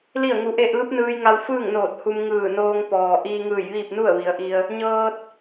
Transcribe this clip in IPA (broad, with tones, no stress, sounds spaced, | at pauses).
l i˥˨ ə̯ ŋ u˧ ʔ e˥˨ ʔ ɯː˧˥ p̚ n ɯː˧ j ŋ a˧ w f ɯː˥˨ ŋ n oː˧˩ t̚ h u˧ m ŋ ɯː˧˩ n oː˧ ŋ p ɔː˩ ʔ iː˧ ŋ ɯː˧˩ j ʋ iː˥˨ p̚ n u˥˨ ə̯ ʋ i˩˧ ə̯ ʔ i˧ ə̯ | ɲ ɤː˧ t̚